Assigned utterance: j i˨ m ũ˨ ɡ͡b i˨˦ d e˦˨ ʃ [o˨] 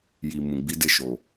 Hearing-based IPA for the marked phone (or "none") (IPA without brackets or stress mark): o˨